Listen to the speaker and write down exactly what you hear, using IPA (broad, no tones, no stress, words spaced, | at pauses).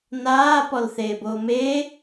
naː pɔlθeːboːmeː